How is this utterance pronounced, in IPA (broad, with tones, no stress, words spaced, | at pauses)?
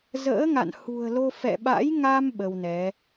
zə̰ː˧˥ŋa̰˧˨nhṳ˨˩ə̯lo˧ fɛ̰˧˨ɓa̰˧˥jŋa˧m ɓə˧wnɛ˨˦